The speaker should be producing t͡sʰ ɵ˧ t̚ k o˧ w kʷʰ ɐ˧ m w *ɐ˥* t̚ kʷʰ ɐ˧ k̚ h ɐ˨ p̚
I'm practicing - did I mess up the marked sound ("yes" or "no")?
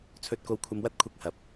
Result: no